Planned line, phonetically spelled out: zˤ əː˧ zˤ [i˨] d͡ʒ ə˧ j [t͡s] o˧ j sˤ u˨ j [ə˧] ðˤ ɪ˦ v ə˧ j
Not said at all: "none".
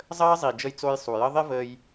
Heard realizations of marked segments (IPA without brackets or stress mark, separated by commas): i˨, t͡s, ə˧